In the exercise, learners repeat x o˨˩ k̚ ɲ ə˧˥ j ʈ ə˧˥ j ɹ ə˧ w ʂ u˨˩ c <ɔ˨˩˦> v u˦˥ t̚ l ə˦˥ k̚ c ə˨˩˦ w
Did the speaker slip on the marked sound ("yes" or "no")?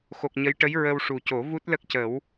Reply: yes